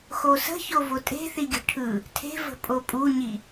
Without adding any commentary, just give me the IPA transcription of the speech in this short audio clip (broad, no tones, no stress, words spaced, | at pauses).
xosə̤ço votʼe̤θi ɡʲə̤ʈʰɯ | tʰe̤və̤ pʼopʼuɲi